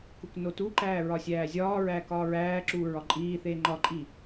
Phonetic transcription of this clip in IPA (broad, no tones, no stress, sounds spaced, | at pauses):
k u k n o t u ǃ æː ɹ ɒ sʲ æː zʲ ɒː ɹ æː k ɒː ɹ æː ǁ uː ɹ ɒ ǃʼ iː θ eː ŋ͡ǃ ɒ ǃʼ i